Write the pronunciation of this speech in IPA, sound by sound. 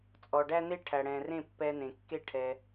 t͡sʼ ɔ˨ ɖ æ˦ n̪ e˦ ʈʰ æ˨ ɽ ɛ̃˨ r ẽ˦˨ pː ɛ˧ n̪ ẽ˨ kː e˦ ʈʰ ɛ˧

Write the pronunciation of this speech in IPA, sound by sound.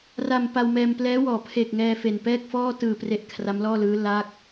r a˧ m p a˧ w m ɛː˧ m p l ɛː˦˥ w ɔː˨˩ pʰ e˨˩ k̚ ŋ ɛː˧ f e˨˩ n p ɛː˥˩ k̚ f ɔː˥˩ t ɯː˨˩ p r e˨˩ ʔ kʰ r a˦˥ m l ɔː˥˩ l ɯː˦˥ l a˦˥ k̚

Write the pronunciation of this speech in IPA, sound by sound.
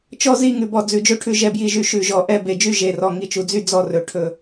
t͡ʃ ɔ˦˨ z i˦˨ ŋ ʉ˨˩ b ɔ˨˩ d͡z ʉ˨˩ d͡ʒ ɵ˦˨ ʈʰ ʉ˨˩ ʒ ɛ˨˩ b j i˨˩ ʒ y˨˩ ʃ ʉ˨˩ ʒ ɔ˨˩ ʔ ɛ˦˨ b e˨˩ d͡ʒ y˦˨ ʒ e˨˩ r ɔ˨˩ ŋ i˨˩ t͡ʃ u˨˩ d͡z y˦˨ d͡z ɔ˦˨ r ɵ˨˩ ʈʰ ɵ˨˩

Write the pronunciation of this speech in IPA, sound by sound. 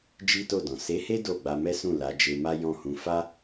d͡ʒ i˦ t o˦˨ d ɔ̃˨ s e˨˦ h e˦ d o˦˨ ɡ͡b a˧ m ɛ˦ s ũ˦˨ l a˨˦ d͡ʒ e˧ m a˦ j ɔ̃˦˨ h ũ˧ f a˦

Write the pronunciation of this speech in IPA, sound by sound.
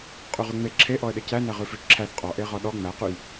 qʼ ʉ ʁ ʉ ŋ͡m e ǁʰ e ʔ ɔ ə̯ ɗ e c æ n æ ʁ ʉ f ʉ t͡ʃ ǁʰ æ θ qʼ ɔ ʔ e ʁ ɔ ɗ ɔ ŋ͡m æ q ʉ j

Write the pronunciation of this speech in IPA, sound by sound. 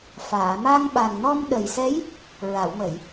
f aː˨˩˨ m a˧ ŋ ɓ a˨˩ ŋ n ɔ˧ m ɗ ə˨˩ j s ɛ˧˥ j | ɹ a˨˩˨ w m ə˨˩˨ j

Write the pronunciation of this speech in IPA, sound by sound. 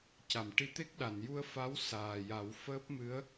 c a˨˩˨ m ʈ i˧ t̪ e˦˥ k̚ ɗ a˨˩˨ n j u˧ ə̯ f a˧˥ w s aː˨˩ j a˨˩˦ w f əː˦˥ p̚ m ɨ˧˥ ə̯

